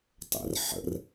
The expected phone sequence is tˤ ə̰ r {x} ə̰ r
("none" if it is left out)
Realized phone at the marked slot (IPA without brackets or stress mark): ħ